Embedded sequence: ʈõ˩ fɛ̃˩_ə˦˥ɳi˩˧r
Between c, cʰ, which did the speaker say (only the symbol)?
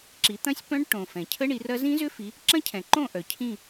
cʰ